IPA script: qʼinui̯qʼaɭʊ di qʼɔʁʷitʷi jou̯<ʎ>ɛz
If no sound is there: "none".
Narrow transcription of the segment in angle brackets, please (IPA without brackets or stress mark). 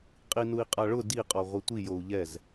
ʎ